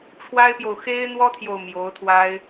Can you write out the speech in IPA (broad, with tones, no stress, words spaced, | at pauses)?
ʈ͡ʂʰwa˥ɪ̯pjo˨ʊ̯ xe˥ɪ̯n̪wɔ˥t̪ʰjo˨ʊ̯ mjo˧˥ʊ̯t̪ʰwa˥ɪ̯